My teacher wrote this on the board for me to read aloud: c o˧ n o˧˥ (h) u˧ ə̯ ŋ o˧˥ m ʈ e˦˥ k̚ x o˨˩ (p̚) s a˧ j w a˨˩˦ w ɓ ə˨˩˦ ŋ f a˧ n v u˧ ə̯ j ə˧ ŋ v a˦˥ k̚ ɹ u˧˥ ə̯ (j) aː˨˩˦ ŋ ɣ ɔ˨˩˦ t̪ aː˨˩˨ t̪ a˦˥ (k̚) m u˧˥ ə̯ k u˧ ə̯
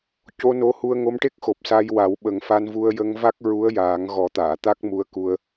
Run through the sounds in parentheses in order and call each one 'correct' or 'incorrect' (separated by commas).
correct, correct, correct, correct